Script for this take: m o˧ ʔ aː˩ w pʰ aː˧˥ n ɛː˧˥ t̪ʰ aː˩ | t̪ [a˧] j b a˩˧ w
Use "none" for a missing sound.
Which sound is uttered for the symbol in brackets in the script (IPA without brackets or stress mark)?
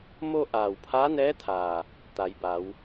a˩˧